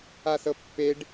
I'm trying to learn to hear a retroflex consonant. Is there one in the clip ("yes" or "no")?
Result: yes